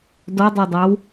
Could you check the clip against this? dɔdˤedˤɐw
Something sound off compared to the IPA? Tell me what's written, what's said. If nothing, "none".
ɐ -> a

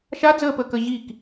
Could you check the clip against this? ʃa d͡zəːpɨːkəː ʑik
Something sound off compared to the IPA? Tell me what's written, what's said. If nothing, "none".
ɨː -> əː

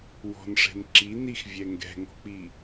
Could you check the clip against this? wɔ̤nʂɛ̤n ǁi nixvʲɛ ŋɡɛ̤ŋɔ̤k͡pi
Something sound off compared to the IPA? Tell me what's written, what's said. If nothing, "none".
none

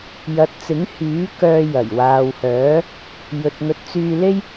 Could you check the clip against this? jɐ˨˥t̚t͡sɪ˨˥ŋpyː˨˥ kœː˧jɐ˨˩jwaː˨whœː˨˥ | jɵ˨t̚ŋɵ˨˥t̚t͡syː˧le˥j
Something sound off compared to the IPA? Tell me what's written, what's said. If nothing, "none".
p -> h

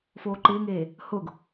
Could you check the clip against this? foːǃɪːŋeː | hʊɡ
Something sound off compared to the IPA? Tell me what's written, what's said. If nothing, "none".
none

